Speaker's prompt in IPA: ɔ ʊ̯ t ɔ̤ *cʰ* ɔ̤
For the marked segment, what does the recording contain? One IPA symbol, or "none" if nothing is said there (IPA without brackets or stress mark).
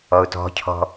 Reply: cʰ